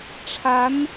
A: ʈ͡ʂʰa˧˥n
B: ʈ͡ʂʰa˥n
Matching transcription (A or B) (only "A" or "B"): A